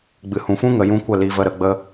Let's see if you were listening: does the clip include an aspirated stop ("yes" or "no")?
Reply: no